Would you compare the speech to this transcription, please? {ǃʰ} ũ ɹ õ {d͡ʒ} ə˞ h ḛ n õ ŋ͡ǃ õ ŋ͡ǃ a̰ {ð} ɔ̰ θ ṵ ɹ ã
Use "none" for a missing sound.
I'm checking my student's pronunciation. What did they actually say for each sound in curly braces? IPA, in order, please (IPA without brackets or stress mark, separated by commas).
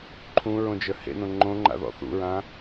ǃʰ, d͡ʒ, ð